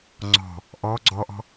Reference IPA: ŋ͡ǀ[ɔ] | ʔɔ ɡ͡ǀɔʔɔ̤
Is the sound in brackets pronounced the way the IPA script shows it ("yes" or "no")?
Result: no